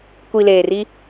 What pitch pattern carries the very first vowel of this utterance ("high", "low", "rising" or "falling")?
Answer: low